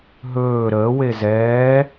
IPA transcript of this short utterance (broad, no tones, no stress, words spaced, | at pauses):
ɦɵː ɾəː wezɛː